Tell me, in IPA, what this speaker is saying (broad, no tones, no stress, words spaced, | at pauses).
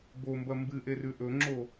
bombɐ mbɨʔerʉ ʔɵŋ͡ǁo